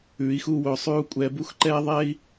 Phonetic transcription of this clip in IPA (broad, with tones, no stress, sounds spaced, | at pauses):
ʉː˨˦ i̯ x uː˦ w ɵː˧ sˤ ʉː˦ u̯ kʷʼ ɛː˧ b u˦ x ǃ ɛː˦ ðˤ ɛː˦ i̯